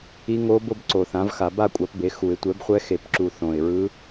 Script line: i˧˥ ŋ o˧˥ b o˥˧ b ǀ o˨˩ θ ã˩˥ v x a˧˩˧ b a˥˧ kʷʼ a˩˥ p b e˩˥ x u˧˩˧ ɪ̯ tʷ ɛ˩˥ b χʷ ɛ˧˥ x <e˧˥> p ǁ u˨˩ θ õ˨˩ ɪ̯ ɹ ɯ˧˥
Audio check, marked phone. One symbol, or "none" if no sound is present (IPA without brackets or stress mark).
e˨˩